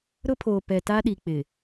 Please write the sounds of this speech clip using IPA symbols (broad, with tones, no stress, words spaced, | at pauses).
ɾʊ˦pʰoː˨ pɛ˨ta˦ɗi˨ k͡pɪ˨